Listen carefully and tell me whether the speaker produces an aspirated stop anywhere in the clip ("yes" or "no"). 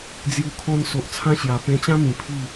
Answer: yes